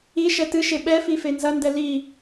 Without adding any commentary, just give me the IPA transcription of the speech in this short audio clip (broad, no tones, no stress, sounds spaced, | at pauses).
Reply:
i ʃ ɛ t ɨ ʃ e ɓ ɛ f i f e n z ɐ n d ɛ l i